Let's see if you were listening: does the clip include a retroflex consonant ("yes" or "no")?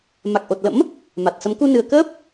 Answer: no